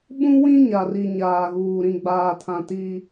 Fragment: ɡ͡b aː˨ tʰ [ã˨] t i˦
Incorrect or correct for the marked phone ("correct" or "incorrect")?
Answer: correct